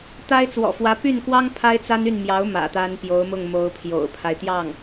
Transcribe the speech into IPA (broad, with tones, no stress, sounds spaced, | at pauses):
t̪ a˥ ɪ̯ t͡s w ɔ̰˨˩ f w ä˧˥ p y˥˩ n k w ɑ˥ ŋ pʰ a˥ ɪ̯ t͡s a˥ n y˥˩ n m j ɑ˧˥ ʊ̯ m ä̰˨˩ t̪ a˥ n p j o˧˥ ʊ̯ m ʊ˥˩ ŋ m o˧˥ ʊ̯ pʰ j o̰˨˩ ʊ̯ pʰ a˦ ɪ̯ t̪ j ɑ˥˩ ŋ